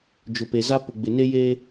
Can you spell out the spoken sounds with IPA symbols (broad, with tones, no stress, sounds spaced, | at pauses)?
d͡ʒ ʊ˨ p e˨ z a˦ p ʊ˨ ɡ͡b ɪ˨ n e˦ j eː˦